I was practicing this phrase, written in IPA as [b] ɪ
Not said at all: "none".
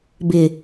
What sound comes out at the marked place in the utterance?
b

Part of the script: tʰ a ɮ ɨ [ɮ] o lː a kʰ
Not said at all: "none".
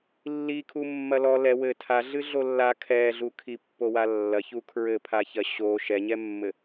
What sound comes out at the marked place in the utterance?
ɮ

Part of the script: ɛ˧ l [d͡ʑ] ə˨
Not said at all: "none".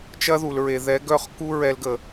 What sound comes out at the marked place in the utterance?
ɡ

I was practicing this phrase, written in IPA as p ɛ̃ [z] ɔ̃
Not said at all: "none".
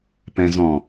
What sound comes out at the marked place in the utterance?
z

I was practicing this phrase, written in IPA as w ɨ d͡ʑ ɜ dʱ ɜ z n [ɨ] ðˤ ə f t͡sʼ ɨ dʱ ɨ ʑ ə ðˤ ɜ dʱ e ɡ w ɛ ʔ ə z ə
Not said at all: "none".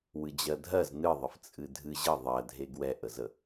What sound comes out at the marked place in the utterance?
ɨ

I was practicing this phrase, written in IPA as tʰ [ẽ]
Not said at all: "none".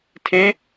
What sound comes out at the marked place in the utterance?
ẽ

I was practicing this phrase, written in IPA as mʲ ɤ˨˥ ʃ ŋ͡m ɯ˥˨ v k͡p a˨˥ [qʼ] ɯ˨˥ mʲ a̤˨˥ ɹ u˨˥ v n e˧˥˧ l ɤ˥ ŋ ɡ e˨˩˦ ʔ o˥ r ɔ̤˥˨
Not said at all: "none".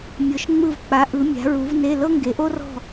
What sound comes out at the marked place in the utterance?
ʔ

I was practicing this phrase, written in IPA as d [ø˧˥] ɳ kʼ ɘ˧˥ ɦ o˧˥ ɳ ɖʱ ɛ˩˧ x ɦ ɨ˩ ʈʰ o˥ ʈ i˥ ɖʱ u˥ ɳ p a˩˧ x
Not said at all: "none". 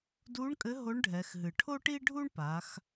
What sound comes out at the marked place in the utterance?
u˧˥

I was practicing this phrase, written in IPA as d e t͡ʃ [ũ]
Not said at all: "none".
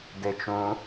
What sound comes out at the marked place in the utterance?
ũ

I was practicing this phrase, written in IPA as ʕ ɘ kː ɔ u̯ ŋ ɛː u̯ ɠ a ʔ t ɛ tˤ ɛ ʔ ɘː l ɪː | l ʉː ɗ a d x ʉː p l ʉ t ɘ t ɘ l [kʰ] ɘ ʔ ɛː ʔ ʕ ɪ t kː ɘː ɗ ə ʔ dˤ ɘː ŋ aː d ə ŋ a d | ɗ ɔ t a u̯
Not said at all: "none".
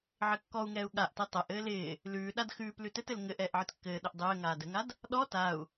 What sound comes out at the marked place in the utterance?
ŋ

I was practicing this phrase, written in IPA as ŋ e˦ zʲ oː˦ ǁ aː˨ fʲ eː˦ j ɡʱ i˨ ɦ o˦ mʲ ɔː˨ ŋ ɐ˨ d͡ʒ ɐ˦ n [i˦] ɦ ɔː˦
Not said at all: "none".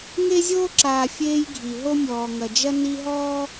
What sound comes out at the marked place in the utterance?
i˦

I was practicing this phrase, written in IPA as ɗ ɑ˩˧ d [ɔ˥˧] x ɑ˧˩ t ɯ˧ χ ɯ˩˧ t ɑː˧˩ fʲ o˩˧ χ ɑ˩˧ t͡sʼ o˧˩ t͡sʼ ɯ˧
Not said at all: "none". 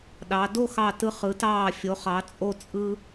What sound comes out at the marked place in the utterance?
o˥˧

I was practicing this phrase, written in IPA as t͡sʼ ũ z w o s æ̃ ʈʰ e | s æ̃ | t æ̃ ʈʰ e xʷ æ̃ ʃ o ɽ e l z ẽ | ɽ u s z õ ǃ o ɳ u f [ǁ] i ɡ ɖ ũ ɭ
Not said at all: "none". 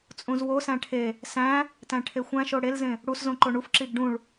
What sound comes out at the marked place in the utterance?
ǁ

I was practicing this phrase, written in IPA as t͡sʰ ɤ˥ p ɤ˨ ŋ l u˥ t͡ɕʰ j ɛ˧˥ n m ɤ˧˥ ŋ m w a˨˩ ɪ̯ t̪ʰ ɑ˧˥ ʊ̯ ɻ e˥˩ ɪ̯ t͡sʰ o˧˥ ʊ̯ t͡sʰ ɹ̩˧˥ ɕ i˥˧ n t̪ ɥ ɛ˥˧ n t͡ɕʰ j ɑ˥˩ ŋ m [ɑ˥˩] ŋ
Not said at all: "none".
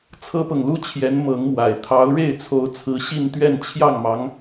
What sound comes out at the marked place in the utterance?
ɑ˧˥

